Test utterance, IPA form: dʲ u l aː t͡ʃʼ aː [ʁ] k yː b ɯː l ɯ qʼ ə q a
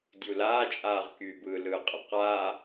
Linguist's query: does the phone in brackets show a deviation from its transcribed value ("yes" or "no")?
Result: no